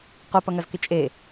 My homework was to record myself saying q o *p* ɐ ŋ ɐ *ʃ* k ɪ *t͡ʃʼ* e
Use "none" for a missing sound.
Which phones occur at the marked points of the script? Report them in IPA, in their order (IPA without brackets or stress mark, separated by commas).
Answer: p, z, t͡ʃʼ